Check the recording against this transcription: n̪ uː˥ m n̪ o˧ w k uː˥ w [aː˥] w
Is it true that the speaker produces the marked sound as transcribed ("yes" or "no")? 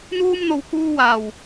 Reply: no